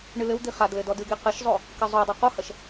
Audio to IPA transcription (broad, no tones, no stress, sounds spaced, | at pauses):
ɳ ɨ l ɘ w d̪ i χ a d l ɘ d ɔ d ɨ ɡ e q ɘ ʃ zˤ o | k ɨ zˤ o dˤ ɐ q o h ɐ ʃ